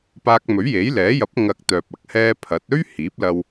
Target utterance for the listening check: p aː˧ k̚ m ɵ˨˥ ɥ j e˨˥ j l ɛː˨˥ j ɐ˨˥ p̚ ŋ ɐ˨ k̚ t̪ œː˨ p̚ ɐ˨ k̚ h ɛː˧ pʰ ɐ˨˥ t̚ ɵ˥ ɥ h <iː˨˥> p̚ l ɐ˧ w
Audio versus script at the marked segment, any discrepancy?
no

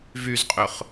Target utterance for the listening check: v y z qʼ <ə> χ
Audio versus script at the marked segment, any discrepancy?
yes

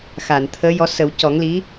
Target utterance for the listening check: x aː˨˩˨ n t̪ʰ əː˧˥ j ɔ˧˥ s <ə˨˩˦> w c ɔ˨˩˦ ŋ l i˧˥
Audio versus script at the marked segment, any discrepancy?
no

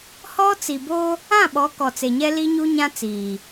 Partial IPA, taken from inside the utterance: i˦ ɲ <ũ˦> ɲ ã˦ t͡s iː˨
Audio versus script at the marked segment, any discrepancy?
yes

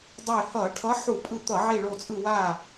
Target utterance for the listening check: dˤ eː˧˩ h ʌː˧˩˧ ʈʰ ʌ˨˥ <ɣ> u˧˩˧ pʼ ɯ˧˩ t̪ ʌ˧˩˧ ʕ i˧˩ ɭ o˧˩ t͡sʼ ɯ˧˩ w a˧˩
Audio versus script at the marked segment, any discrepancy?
yes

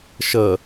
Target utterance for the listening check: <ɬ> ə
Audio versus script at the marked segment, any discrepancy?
yes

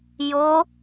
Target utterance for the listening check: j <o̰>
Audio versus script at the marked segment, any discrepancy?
yes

